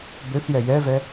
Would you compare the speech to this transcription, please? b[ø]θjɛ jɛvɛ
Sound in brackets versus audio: correct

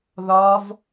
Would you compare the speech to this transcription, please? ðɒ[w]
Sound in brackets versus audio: incorrect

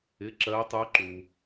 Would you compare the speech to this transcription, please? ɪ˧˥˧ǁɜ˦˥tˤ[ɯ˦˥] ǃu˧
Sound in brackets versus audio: incorrect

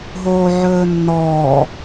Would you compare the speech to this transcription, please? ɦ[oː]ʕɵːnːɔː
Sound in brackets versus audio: correct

